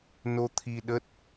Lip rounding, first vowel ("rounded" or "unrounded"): rounded